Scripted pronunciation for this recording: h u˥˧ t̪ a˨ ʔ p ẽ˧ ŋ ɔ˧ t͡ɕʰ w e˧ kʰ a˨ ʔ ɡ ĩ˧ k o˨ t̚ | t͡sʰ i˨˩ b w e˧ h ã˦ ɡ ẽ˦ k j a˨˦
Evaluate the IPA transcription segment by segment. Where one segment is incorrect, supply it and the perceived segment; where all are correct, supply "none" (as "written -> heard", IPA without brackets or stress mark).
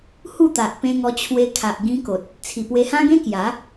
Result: b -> p